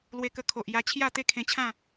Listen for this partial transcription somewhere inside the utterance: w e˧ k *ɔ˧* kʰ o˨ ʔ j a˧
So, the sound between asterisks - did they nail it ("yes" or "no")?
no